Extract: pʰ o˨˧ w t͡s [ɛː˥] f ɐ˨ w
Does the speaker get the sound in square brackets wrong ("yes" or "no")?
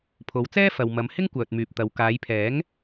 no